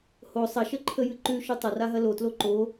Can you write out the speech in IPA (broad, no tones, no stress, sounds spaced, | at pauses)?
h o sˤ ɐ ʃ ə ǃʰ ə j ɨ ǃ ʉ ʃ ʉ tˤ ɐ r a ɦ ɐ l o t l o ǃ o